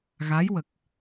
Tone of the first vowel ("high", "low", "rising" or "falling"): rising